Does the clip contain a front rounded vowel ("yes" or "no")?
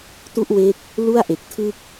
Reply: no